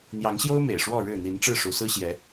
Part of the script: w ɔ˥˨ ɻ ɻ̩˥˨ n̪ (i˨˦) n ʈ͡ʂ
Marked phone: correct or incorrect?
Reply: correct